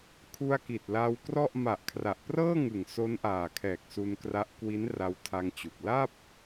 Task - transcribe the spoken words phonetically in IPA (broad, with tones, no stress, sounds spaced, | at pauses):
kʰ u˧ a̯ k i˨˩ t̚ l a˧ w k r ɔ˥˩ ʔ m a˨˩ ʔ kʰ r a˨˩ ʔ p r ɤː˥˩ ŋ ɯ˨˩ ŋ s o˦˥ n ʔ aː˨˩ kʰ ɛː˨˩ k̚ s u˧ n k r a˦˥ ʔ k w i˦˥ n r a˧ w tʰ a˧ ŋ t͡ɕ u˨˩ k̚ l a˥˩ p̚